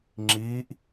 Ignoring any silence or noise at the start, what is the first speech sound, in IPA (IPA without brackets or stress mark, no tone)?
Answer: ŋ͡ǁ